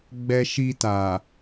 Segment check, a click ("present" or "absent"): absent